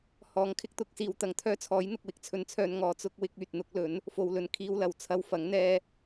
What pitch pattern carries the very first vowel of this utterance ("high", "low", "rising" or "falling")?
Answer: rising